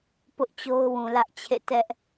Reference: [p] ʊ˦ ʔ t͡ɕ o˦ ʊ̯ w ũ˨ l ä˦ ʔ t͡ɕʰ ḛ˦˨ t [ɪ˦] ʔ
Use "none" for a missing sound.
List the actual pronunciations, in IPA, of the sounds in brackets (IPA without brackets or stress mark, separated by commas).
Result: p, ɛ˦